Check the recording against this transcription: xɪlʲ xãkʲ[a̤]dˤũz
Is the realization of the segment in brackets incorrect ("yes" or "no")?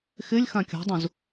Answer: no